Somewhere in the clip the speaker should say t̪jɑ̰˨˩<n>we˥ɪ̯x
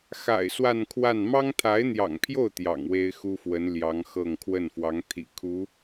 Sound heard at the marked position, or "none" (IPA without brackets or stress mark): ŋ